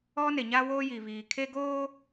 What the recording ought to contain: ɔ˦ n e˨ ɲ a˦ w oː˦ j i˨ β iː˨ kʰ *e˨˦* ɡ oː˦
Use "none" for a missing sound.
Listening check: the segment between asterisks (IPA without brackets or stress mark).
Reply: e˦